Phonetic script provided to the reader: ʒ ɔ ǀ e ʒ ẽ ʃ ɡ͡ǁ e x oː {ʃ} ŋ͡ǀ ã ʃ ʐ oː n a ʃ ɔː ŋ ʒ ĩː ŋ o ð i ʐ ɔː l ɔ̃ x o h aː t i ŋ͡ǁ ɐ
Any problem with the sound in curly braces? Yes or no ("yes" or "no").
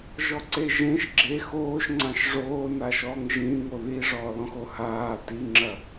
no